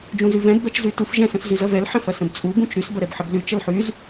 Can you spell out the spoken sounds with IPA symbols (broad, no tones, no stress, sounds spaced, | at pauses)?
d͡ʒ ũ z y v ɛ̃ d b ɛ t͡ʃ z y t u f ʒ ɛ̃ s ə̃ s z y z ɐ v ɛ l ħ ɐ̃ f ɐ s ə̃ b t͡sʼ u b ũ t͡ʃ ɾ y s b ɐ ɾ ɛ b ħ ə b l y t͡ʃ ɐ l ħ y z